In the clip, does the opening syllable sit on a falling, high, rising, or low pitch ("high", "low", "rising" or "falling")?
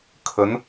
rising